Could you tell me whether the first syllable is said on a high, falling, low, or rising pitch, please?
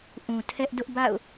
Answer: low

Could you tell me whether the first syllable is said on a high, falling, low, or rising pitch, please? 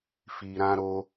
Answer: low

